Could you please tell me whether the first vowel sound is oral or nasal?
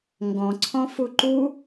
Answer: nasal